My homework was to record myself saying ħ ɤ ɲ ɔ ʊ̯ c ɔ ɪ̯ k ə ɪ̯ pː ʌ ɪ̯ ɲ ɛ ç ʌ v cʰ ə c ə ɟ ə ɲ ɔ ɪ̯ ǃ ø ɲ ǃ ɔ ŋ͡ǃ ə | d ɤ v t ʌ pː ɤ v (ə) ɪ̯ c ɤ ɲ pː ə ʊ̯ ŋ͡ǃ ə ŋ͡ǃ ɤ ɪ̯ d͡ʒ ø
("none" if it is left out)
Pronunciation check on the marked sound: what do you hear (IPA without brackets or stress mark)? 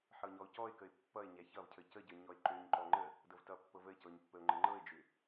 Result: ə